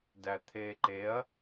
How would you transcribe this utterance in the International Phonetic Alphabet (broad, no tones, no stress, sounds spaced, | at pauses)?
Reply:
d æ t̪ʰ eː ǃ e ɐ̯